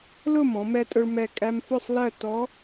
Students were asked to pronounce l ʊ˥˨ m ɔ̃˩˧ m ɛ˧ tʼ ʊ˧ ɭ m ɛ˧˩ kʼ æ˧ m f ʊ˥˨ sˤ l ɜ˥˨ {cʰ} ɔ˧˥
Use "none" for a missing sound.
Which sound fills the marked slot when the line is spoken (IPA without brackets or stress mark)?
t